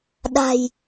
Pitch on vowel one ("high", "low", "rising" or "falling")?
low